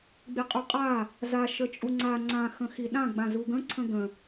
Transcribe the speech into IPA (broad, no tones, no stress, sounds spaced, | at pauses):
ɡ͡b i qʼ u qʼ a | z a ʃ ə t͡ʃʼ u ŋ͡ǀ a ŋ͡ǀ ã x ə̃ x i ɗ ã ɡ͡b ã z u ɡ ə̃ ǀʰ ə̃ ɡ ə̃